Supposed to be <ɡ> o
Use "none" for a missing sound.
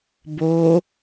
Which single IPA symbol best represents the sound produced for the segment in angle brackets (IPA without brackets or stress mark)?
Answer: b